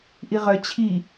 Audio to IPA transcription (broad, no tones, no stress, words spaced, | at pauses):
ʔiʁœ t͡ɕʰi